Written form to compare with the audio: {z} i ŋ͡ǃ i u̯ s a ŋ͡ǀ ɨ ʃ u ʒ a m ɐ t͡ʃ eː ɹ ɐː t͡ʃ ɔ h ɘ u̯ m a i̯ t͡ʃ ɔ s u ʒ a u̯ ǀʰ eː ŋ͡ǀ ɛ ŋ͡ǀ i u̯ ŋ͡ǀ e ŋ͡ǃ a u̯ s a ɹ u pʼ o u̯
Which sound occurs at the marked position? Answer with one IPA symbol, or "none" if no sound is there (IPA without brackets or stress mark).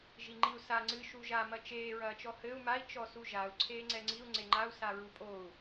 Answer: ʒ